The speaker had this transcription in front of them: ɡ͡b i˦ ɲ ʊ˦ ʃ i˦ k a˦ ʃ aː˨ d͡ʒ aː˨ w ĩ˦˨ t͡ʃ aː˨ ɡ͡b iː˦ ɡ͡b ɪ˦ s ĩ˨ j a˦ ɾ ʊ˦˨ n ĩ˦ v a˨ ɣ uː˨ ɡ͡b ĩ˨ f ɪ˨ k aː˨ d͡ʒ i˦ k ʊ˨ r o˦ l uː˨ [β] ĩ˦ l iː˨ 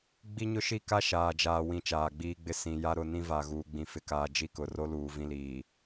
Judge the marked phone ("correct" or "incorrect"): incorrect